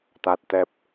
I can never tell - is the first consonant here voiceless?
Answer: yes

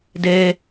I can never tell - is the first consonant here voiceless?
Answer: no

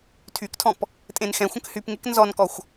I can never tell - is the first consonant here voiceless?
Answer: yes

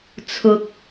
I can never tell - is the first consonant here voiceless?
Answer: yes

